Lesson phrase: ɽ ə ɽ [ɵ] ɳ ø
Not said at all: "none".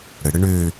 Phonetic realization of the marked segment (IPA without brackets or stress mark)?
ə